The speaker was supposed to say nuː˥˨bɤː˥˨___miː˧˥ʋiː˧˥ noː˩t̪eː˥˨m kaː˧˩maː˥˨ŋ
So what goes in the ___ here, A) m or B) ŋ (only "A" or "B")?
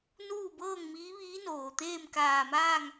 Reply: B